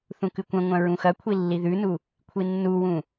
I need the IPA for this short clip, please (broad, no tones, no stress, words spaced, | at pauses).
θũkɨkʷɐ̃ŋʷɐ̃ ɹũxɐkʷʰi lːiðʉnu | kʷʰinːuwũ